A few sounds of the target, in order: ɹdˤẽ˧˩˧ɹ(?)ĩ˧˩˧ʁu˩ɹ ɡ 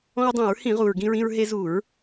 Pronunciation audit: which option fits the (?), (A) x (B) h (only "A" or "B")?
B